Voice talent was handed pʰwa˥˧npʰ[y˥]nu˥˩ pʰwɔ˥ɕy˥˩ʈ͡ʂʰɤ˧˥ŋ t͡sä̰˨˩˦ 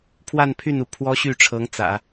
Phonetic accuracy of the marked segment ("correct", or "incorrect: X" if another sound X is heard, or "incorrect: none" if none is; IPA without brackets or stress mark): incorrect: y˥˧